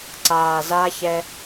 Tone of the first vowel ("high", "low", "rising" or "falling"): low